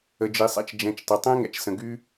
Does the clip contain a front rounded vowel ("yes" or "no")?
yes